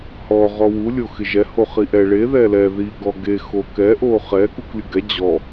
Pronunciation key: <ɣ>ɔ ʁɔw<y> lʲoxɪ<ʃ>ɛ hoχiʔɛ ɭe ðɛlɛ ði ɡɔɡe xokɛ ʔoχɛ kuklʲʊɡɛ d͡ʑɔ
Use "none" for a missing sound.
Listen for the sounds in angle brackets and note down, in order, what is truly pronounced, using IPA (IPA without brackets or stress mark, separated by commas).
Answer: h, u, ʒ